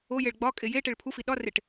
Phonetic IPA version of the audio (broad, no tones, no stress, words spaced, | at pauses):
ojeɭ ɡ͡bɒkʼe jeʈeɭ pʰufi ɗɒreʈ